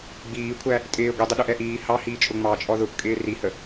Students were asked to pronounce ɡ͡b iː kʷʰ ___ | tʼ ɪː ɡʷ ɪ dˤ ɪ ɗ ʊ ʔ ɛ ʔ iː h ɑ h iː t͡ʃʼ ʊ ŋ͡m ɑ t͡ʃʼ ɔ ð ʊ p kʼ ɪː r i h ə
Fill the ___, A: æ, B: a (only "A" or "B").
A